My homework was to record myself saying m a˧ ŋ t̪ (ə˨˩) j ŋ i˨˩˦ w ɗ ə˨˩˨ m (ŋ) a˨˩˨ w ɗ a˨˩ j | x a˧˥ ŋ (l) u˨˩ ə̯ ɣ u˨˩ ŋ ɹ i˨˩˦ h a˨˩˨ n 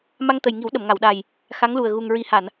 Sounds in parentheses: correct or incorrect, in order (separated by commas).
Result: correct, correct, correct